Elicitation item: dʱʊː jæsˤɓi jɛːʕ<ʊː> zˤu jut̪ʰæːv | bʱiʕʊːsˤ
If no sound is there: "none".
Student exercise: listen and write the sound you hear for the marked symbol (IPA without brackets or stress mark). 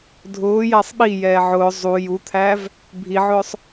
ʊː